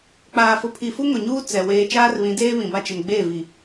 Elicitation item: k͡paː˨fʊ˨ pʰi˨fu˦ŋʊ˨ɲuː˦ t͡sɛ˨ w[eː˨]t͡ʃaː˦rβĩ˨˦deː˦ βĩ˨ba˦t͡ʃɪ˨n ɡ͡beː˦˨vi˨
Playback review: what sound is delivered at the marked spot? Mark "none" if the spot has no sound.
eː˨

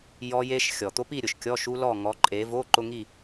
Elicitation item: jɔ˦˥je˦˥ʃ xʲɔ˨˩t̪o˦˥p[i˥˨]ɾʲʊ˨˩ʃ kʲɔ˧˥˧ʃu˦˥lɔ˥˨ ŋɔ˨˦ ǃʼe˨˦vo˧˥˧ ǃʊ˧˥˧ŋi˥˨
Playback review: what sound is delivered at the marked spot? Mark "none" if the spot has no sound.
i˥˨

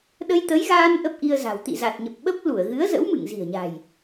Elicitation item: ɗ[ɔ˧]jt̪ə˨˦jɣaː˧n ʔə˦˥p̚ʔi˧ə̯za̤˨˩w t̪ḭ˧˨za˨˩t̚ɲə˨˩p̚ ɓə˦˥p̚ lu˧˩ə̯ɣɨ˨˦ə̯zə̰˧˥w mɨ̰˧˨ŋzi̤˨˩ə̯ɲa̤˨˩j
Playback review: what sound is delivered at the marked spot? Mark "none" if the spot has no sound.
ə˧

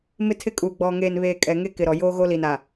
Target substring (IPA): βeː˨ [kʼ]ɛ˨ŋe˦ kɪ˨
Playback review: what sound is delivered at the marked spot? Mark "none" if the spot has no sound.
kʼ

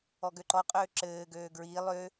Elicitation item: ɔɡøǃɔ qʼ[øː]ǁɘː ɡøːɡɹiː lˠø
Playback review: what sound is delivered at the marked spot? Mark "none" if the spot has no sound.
øː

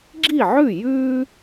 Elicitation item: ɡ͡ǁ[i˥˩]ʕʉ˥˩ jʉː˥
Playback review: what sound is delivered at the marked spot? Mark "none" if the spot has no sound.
i˥˩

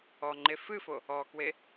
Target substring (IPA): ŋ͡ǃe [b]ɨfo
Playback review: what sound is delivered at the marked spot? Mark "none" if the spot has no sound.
f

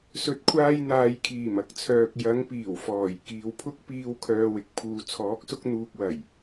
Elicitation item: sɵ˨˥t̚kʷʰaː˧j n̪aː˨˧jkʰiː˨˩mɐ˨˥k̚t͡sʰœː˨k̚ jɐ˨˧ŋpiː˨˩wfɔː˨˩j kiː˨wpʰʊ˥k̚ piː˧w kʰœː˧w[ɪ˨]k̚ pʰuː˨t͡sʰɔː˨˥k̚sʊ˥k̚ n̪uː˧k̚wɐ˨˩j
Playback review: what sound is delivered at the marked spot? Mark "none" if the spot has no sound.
ɪ˨˥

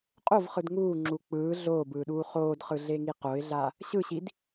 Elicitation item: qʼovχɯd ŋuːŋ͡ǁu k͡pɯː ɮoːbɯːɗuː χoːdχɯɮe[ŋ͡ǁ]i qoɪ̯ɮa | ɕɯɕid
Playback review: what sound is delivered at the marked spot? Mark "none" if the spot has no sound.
ŋ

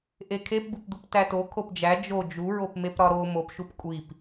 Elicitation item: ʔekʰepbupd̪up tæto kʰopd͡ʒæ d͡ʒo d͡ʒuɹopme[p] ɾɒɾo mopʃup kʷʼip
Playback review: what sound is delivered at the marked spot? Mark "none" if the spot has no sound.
p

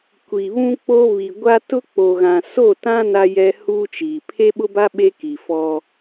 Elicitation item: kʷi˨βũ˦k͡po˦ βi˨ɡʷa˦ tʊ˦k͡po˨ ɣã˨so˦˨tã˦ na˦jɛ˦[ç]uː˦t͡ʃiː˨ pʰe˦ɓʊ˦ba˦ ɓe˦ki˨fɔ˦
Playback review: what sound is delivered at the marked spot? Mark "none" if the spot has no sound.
h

